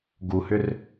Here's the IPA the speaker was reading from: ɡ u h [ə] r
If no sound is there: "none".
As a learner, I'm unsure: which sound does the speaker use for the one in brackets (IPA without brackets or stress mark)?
ʏ